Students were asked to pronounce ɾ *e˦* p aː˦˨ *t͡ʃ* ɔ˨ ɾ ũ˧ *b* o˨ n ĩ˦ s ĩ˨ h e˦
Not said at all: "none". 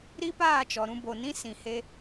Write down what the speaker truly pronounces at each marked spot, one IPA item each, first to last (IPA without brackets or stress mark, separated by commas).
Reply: i˦, t͡ʃ, b